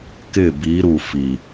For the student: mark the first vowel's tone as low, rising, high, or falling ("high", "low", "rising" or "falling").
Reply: falling